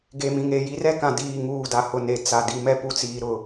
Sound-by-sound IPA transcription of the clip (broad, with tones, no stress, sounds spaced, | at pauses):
ɡ e˨ m ĩ˨ ŋ e˦˨ j i˦ r ɛ˦ k ã˨ d iː˦˨ ŋ uː˦˨ d a˨ h ʊ˨ n e˨ t͡s a˨ d i˨ m ɛ˦ p u˨ t͡s iː˨ ɾ ʊ˨